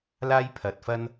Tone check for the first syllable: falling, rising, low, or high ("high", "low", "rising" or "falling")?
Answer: high